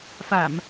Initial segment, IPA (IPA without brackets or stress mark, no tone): f